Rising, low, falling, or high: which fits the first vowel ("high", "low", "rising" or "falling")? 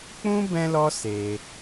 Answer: high